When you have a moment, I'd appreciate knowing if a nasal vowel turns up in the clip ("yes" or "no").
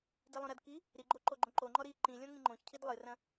yes